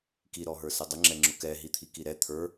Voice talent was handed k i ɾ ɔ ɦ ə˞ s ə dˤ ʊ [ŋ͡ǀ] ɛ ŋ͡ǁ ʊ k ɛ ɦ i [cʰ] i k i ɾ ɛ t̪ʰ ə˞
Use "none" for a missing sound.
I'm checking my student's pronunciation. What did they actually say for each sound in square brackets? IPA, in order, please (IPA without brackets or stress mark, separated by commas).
ŋ͡ǁ, t̪ʰ